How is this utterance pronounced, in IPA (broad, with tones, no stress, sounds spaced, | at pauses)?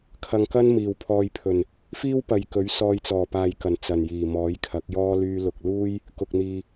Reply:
kʰ ɐ˨ ŋ k ɐ˥ n m iː˨˩ w pʰ ɔː˨ j pʰ ɵ˨˩ n | f iː˥ w p ɐ˨ j k ɵ˨˥ ɥ s ɔː˧ j t͡s ɔː˨˩ p aː˨ j k ɐ˨˩ n t͡s ɐ˨˩ n j iː˨˩ m ɔː˨˥ j kʰ ɐ˨˥ k̚ j ɔː˥ l yː˧ l ʊ˨ k̚ l uː˥ j | k ʊ˧ k̚ n̪ iː˧